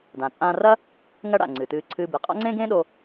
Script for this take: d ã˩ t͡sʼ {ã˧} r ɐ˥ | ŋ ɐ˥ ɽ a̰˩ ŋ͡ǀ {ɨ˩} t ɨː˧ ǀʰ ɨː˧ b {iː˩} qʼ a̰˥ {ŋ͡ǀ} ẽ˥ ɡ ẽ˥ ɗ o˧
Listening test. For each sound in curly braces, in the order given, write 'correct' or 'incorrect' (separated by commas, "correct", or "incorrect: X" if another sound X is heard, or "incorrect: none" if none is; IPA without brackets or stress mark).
correct, correct, incorrect: i˩, correct